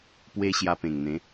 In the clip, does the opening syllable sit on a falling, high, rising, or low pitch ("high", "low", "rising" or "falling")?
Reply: high